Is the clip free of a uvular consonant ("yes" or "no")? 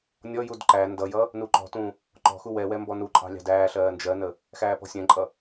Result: yes